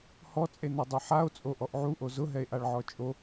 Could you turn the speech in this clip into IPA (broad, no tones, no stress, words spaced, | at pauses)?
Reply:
hɔt͡sʼenɛdˤɛ ħao̯t͡sʼoʔɔʔ ʕuʔo zʊɦɛe̯ʔaɭʕɔ t͡ʃʼo